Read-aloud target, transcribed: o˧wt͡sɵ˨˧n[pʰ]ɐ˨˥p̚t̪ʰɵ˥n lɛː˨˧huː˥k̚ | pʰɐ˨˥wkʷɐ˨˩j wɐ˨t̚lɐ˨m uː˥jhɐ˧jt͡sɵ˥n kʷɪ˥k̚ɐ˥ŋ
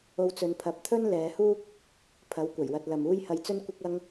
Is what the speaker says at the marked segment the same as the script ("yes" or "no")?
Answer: yes